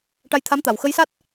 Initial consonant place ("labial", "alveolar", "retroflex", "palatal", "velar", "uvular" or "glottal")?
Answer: retroflex